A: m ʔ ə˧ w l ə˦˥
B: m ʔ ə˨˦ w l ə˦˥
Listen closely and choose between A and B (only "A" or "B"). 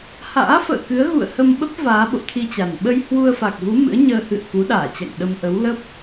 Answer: B